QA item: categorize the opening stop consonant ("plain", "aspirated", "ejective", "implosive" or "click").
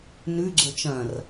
click